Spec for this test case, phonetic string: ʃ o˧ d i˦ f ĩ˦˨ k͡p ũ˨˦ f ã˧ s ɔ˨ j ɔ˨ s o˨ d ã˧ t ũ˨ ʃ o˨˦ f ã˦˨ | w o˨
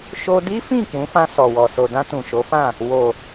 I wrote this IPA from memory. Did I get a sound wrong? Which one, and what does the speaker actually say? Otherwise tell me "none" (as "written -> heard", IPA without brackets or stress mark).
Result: j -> w